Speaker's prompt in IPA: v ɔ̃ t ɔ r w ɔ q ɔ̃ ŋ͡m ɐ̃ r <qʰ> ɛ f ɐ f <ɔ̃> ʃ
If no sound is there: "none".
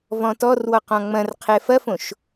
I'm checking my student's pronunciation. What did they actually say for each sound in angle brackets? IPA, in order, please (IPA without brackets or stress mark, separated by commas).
qʰ, õ